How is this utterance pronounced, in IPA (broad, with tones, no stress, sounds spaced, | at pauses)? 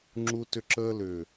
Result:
ŋ͡ǁ u˦ t ʏ˦ ǁ əː˦ l ʏː˨